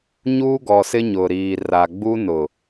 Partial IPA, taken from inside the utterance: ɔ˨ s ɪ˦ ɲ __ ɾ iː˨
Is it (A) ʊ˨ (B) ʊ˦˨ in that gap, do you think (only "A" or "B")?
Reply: A